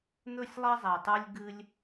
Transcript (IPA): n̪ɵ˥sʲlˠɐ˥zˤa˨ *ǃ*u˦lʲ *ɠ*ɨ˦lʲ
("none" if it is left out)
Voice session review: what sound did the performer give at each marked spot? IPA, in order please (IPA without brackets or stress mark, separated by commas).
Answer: tˤ, ɡ